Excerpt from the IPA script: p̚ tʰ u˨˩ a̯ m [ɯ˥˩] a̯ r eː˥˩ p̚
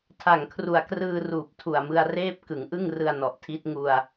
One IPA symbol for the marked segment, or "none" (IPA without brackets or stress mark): ɯ˧